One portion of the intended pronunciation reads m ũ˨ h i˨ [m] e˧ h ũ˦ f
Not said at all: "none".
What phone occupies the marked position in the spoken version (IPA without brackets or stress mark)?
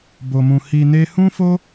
n